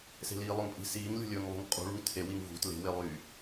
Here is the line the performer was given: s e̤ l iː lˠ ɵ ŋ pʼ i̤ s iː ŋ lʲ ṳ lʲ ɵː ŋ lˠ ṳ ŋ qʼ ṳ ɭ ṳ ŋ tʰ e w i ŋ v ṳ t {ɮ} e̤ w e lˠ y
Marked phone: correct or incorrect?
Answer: incorrect